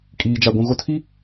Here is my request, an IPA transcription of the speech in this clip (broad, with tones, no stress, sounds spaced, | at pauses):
kʼ iː˨ d͡ʒ a˨ ɡʷ ũ˨ ɣ o˦ tʰ i˦